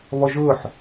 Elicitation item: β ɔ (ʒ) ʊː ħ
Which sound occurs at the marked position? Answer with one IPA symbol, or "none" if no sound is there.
ʒ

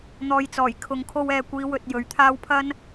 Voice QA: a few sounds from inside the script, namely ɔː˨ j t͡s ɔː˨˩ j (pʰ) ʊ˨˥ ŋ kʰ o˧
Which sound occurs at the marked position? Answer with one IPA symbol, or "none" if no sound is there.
kʰ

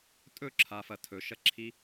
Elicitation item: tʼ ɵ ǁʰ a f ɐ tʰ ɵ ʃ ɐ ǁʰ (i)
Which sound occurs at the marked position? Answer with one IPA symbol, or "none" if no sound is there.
i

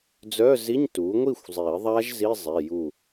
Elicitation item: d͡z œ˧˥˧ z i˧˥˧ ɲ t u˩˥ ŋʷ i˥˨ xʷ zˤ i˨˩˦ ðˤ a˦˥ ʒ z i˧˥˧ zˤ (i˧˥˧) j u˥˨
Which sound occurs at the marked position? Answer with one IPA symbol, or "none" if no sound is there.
i˩˧˩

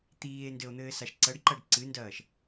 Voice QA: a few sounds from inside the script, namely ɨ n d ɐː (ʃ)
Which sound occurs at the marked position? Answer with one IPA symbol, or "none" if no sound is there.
ʃ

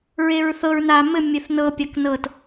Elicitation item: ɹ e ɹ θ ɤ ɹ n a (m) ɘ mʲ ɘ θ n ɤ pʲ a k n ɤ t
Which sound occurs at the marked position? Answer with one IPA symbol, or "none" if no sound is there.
m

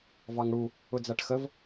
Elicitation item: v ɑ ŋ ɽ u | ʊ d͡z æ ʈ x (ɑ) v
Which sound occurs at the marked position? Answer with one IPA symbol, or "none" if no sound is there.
ə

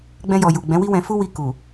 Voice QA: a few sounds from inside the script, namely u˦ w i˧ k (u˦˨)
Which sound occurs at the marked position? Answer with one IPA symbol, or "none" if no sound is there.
u˨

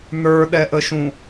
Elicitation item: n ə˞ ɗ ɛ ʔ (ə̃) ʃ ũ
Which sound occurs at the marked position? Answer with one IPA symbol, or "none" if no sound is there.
ə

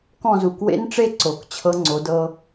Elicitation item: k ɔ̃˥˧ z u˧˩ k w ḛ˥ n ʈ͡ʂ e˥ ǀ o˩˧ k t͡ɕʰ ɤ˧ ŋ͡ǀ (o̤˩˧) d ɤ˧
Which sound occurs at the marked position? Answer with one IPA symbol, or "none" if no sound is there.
o˩˧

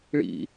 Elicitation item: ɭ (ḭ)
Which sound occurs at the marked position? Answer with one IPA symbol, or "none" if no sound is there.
ḭ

